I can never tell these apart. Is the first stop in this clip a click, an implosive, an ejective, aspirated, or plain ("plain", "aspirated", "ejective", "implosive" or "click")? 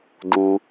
plain